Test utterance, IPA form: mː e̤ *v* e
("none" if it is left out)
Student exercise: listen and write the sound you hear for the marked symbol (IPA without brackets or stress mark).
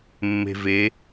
v